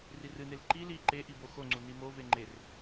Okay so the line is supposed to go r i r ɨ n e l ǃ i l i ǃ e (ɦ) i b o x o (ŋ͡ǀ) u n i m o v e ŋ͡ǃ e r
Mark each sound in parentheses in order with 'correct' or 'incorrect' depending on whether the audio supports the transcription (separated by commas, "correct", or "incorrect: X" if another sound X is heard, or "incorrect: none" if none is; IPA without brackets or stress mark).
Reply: incorrect: ʔ, correct